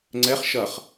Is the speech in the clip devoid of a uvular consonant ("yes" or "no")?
no